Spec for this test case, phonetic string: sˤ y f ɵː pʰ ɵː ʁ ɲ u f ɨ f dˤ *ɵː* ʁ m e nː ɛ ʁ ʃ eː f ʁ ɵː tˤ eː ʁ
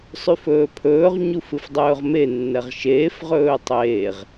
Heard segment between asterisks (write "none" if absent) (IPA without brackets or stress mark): ɵː